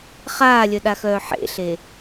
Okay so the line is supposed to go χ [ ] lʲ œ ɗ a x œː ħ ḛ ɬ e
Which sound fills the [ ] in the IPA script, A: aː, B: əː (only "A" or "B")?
A